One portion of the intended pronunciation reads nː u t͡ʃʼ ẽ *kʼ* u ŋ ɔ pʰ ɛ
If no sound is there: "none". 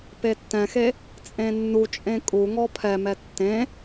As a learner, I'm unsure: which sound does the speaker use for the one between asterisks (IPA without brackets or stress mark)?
kʼ